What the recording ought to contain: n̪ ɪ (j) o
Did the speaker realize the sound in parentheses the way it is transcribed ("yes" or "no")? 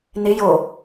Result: yes